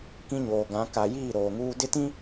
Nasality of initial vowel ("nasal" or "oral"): nasal